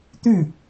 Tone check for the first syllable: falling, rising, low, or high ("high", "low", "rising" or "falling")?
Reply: falling